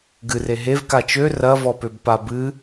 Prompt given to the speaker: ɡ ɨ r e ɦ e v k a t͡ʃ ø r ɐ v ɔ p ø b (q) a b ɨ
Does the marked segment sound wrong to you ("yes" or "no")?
yes